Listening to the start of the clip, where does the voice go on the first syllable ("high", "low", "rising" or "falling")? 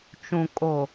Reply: low